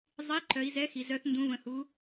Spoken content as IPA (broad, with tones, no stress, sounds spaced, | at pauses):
zˤ i˨˥ ǃ œ˩˧ i̯ z ɛ˨˥ x i˩ z œ˩˧ θ n d ũ˩˧ v ə̃˩ h u˩˧